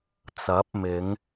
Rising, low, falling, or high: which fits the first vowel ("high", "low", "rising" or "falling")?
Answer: rising